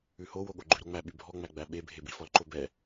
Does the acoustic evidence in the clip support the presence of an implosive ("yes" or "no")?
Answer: yes